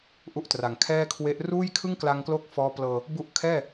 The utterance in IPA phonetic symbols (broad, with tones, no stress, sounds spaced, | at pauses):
ʔ u˥˩ ʔ t r a˨˩ ŋ kʰ ɛː˥˩ kʰ w e˦˥ ʔ r uː˥˩ j kʰ ɯ˥˩ ŋ k l a˧ ŋ k l o˦˥ k̚ f ɔː˦˥ p l ɤː˧ | b u˦˥ ʔ kʰ ɛː˥˩